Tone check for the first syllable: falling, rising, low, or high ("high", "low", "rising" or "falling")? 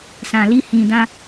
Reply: low